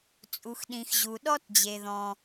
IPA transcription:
t͡sʼ u˩ x ɗ ĩ˩ x ʑ u˩ ɗ ɔ˥ t d͡ʑ e˩ ð ɔ̃˩

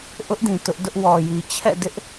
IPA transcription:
ʔ ʊ˦ ʔ d ĩ˨ t ʊ˦ ʔ d ʊ˦ ʔ w ɔ˨ j i˨ t͡ɕʰ ɛ̰˦˨ d ɪ˦ ʔ

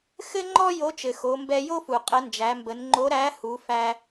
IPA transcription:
x ɘ˥ ŋ͡ǃ ɔ˥ j o˧˥ t͡ʃ ɘ˩ x o˩˧ m b ɛ˧ j o˥ f u˩ qʼ ə˩˧ n d͡ʒ æ˩˧ m b ə˩˧ n ŋ͡ǃ o˧˥ ɾ æ˧˥ h u˩˧ f æ˧

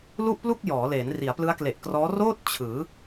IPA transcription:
l u˥˩ ʔ p l u˥˩ k̚ j ɔː˩˦ l eː˩˦ n r i˩˦ a̯ p l ɯ˦˥ a̯ k l e˨˩ ʔ k r ɔː˦˥ r oː˥˩ t̚ t͡ɕʰ ɯː˩˦

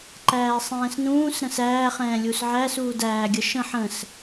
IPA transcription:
ǃ æː sˤ ɛ̃ː s n ũː s ɾ ə̃ s æː χ ɛ̃ː lʲ u s ʕ æ s uː d æː ɡʲ ə ʃ ə̃ ħ ə̃ s

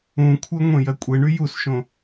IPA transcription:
ũ kʷʰ ɜ ŋʷ ẽ j ɜ kʷʼ e ɳ y j u s ʃ õ

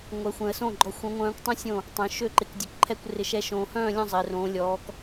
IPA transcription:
ŋʷ ɛ˨˦ xʷ ɛ̃˨ ə̯ s õ˥˨ ɡ͡ǃ ɔ˨˦ xʷ õ˨˦ ŋʷ œ̃ː˨˦ kʷ tˤ õ˥˨ sʲ õ˥˨ | tˤ œ̃˨˦ ʃ ø˥˨ ǃ ɪ˨˦ k dʲ œ˨˦ k ǃʰ ɛ˥˨ kʷ r ɪ˨˦ ʃ ɛ˨˦ ʃ õː˨ h œ̃ː˥˨ lʲ ɔ̃˥˨ zˤ ɪː˨ r õː˨˦ lʲ ɔː˨˦ k

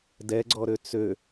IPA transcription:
d ɛ ɡ͡ǀ ɔ ɾ ø t͡s ø

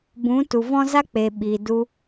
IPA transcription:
b ũ˨˦ t u˨ v ɔ̃˦ z a˦ k͡p e˨ ɓ i˨ d u˧

